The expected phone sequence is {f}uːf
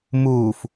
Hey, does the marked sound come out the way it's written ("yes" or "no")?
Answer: no